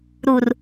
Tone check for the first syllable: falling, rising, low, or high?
low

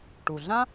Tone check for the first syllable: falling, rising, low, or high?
low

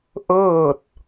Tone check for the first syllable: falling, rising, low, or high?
falling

